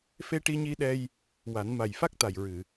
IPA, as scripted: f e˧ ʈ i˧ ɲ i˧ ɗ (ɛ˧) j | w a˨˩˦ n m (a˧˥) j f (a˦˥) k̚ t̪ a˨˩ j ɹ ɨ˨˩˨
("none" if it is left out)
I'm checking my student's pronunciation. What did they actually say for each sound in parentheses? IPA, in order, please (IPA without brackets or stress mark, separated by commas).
ɛ˧, a˨˩, a˦˥